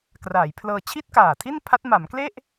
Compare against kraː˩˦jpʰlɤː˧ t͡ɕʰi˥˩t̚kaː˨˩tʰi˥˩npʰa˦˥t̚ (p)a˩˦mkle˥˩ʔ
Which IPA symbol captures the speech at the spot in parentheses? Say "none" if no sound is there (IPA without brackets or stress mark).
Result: m